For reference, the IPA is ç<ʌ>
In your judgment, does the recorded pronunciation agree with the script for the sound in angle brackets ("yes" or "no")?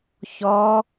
no